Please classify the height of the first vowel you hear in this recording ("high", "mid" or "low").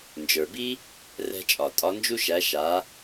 mid